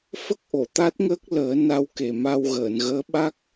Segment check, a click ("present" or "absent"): absent